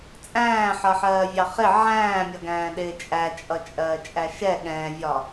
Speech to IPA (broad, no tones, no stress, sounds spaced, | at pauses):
t͡sʼ æ̃ː ħ ʌ ħ ɜː vʲ ɑ χ ɪ ʕ æ̃ː mʲ ʌ ɡ æ̃ː ɗ ɪː t͡ʃʼ æ t͡ʃʼ ʌ t͡ʃʼ ɜː t͡ʃʼ æ ʃ ɛ ɠ ɛ̃ vʲ ɒ